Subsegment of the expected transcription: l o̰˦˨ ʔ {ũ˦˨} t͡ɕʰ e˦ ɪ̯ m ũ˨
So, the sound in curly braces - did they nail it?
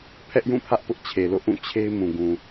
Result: yes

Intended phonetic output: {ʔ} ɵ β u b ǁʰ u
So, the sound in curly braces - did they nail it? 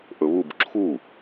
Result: yes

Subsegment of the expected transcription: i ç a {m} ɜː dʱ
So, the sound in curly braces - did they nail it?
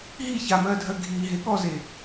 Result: yes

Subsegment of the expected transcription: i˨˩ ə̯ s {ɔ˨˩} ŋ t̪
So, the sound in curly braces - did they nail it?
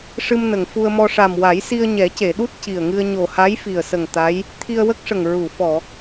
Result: no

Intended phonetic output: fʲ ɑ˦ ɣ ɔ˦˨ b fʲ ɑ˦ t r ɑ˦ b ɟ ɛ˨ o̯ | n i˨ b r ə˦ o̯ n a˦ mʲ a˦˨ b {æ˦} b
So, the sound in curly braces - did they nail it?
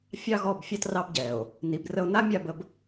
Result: no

